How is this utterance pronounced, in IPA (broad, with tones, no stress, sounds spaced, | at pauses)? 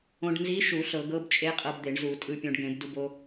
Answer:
õ˧ ɖ n z i˧˥ ʃ u˧˩˧ ɬ ɤ˧˩˧ ɡ ɤ˧˥ b t͡ʃʼ e˧˥ qʼ ɤ˧ b d̪ e˧˩˧ ɳ z u˧˩˧ tʼ ɯ˧ pʲ õ˧ ɖ ɡ ẽ˧˩˧ b d u˧ b o˧